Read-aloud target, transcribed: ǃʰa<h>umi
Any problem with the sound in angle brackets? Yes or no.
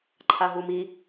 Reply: yes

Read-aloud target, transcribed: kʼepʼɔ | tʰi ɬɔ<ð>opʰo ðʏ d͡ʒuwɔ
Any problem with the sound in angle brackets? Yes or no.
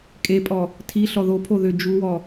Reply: no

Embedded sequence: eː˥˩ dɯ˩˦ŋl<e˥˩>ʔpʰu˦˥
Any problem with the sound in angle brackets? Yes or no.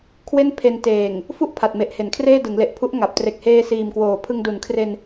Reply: yes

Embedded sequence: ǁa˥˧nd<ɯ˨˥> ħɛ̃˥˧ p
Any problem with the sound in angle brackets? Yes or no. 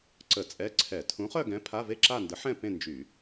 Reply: yes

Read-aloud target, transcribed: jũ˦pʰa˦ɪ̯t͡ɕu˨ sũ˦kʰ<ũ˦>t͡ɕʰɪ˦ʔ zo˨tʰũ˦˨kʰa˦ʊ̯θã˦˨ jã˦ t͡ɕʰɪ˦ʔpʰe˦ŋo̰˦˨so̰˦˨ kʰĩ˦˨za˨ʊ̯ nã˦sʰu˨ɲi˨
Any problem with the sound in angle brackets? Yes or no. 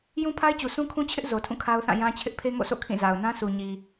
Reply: no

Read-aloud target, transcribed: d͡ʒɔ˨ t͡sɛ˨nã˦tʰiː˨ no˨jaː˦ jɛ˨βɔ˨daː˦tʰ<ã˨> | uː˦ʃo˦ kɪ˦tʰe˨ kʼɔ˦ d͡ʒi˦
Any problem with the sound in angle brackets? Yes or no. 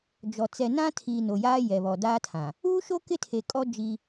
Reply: no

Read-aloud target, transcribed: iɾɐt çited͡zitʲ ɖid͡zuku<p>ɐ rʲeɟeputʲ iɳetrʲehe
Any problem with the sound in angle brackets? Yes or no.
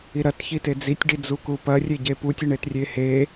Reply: no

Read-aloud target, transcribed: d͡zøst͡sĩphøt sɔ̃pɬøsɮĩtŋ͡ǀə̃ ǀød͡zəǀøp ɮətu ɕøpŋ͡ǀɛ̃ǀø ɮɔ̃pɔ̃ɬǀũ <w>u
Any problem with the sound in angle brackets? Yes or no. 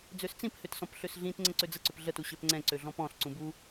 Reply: yes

